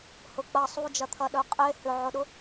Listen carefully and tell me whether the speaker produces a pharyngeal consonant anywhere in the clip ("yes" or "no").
yes